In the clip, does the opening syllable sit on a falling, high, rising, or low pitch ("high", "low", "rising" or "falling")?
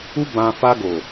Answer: high